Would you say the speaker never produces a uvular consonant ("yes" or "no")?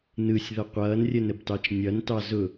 no